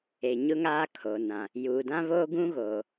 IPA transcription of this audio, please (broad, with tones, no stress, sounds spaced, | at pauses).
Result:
e˨ ɲ ʊ˦ ŋ aː˦ kʰ o˨ n ã˨ | j uː˨ d ã˦ β oː˦ ɡ ũ˦ ɣ oː˨